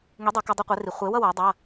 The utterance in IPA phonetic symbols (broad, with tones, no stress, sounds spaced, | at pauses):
ŋ i˨˥ dˤ ʌ˨˩˦ k ʌ˧˥˧ dˤ i˥˧ qʷ ɛ˨˥ r i˨˩˦ χʷ e˨˥ w ʌ˥˧ w a˨˥ dˤ a˧˥˧